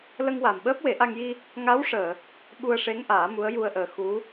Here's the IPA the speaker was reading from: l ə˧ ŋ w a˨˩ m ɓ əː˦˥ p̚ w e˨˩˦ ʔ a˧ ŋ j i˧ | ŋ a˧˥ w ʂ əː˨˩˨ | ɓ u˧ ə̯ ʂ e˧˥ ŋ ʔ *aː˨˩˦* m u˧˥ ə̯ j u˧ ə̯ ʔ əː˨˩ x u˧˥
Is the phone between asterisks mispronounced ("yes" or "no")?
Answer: no